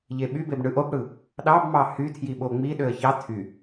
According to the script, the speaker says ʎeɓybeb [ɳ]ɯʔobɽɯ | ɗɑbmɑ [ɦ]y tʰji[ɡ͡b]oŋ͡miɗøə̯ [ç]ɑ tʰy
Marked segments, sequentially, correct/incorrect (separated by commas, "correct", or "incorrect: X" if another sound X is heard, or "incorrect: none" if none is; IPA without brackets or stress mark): correct, incorrect: h, incorrect: ɓ, correct